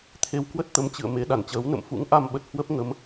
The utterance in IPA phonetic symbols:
t̪ʰe˧wkwə˦˥t̚t̪ə˨˦m t͡ɕɨ̰˧˨ə̯ me˨˦ɗa˧˩nt͡ɕəː˨˦w nə̰˧˨mfṵ˧˥ŋʔa˧mɓə˨˩t̚ hwə˦˥p̚ŋə˨˦m

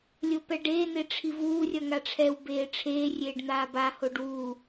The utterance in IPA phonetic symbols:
lʲopɛɖeː n̪eʈ͡ʂʰivuː rʲʌŋaʈ͡ʂʰɛw beːʈ͡ʂʰeː rʲeːɖn̪aːba hoɖwu

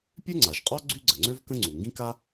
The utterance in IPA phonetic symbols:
pʲø˥ŋ͡ǀa˩ʒqʼɔ˥ ɡ͡ǀy˥ɡ͡ǀə˩ŋ͡ǀø˥v kə̃˥ŋ͡ǀu˩ ŋɡĩ˥ka˥

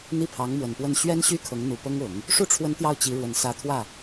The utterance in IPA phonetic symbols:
n̪i˥˩pʰɑ˧˥ŋmwə˨˩npwə˥˩n ɕɥɛ˥nɕy˥ kʰɤ˧˥ŋn̪u˨˩pɤ˥ŋʊ˨˩˦ŋ | ʂu˥˩ʈ͡ʂʰwə˧˥n t̪jɑ˥˩ʊ̯t͡ɕi˧˥ ɻwə˨˩nsä˧˥t̪ʰwä˥˩

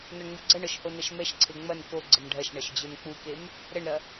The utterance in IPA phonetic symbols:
nɔɳŋ͡muɡ͡ǀɐɳɔʃ honɐʃmɛʃǀʰe ŋ͡mɐn ko ɡ͡ǀəmɖʱɐʃɳɐʃ d͡ʑonk͡pukem | ɾəɳɾɐ

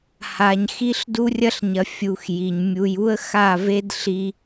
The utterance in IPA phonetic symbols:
ha˨ɲxi˦ɬdu˦ rʲɐ˦ɬɲɐ˨ fʲu˨x ji˨ɲ mʲu˨ju˦ə̯ xa˦˨ve˦d ɬi˦

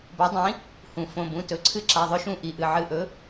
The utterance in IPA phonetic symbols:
bo˩˥dˤĩ˩˥ | hũ˩ fõ˩˧˩bũ˩˧˩ tɵ˩˥ǀʰɨ˦˨ ǁa˩˧˩ðˤɵ˦˨ʃũ˦˨ ʔi˩ʔɨ˩ ʕɨ˩˧˩ʔɵ˩˥

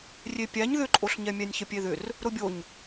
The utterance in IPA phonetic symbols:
rʲepʲæɲ ðʏǃʼoɬɲɛ mʲænʲçəpʲeðʏr | ɾʊbʲoɲ

